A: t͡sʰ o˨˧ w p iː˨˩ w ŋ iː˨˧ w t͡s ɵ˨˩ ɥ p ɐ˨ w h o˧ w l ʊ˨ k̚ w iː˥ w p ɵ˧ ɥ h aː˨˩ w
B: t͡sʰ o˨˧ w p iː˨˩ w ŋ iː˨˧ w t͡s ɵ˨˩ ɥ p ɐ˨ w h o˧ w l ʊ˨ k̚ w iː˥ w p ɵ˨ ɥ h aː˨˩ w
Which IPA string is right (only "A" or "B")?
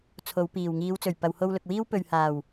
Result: B